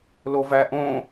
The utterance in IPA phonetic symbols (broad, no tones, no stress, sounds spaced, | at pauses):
l o v æ ʔ õ